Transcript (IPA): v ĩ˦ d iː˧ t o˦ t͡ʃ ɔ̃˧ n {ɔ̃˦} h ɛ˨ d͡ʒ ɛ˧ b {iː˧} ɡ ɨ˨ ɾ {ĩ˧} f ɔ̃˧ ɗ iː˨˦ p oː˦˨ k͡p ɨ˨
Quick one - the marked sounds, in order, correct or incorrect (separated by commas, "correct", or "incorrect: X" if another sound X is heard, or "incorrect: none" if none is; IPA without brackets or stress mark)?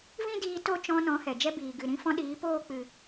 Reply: incorrect: ɔ̃˨˦, incorrect: iː˨, correct